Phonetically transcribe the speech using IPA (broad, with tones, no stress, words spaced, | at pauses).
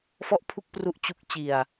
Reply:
fɔ˥˩ʔpʰu˥˩k̚pru˦˥ʔ t͡ɕu˦˥k̚ t͡ɕi˧a̯